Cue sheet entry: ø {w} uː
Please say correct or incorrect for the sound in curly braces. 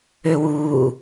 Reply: correct